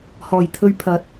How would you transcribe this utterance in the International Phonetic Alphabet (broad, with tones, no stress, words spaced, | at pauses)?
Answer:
hɔː˨˩jt̪ʰɵ˧ɥ pʰɐ˨˥t̚